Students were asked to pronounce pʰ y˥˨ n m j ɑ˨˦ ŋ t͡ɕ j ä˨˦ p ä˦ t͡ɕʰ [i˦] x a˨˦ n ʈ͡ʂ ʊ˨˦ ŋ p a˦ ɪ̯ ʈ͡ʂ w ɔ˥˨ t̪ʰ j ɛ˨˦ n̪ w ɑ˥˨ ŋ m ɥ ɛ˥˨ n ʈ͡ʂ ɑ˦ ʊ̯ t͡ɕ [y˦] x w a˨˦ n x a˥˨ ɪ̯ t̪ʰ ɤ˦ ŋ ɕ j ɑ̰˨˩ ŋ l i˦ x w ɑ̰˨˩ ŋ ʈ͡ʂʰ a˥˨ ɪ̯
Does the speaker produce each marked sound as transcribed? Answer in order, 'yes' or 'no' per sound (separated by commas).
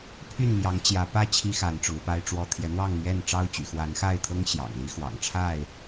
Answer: yes, no